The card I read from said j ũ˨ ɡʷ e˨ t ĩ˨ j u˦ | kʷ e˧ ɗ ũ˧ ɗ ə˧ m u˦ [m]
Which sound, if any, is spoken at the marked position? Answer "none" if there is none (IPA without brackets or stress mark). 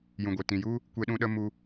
none